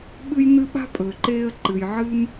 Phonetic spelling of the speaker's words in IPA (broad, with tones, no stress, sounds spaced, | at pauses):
ɓ ɨ˦ j n ɨ˦ ɓ a̤˥ pʼ ɵː˨ ǃ eː˦ ə̯ ǃ ɨ˨ j ʕ ɨː˦ m